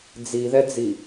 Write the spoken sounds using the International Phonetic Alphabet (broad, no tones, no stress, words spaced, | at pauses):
d͡ziðɛd͡zi